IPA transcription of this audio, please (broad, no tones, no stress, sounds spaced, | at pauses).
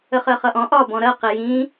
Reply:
ə χ ɜ χ ʌ ʔ ɔ̃ ʔ ɒ b ɔ̃ ɾ ɜ q i j ĩ